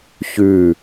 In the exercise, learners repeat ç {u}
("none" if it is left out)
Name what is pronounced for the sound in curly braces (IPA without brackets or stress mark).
ʉ